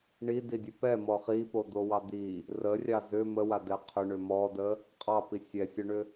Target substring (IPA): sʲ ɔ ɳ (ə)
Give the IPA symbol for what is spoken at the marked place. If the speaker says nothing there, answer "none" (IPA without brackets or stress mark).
ʏ